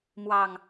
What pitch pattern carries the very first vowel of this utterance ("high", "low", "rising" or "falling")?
low